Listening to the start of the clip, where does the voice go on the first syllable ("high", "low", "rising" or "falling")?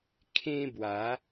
high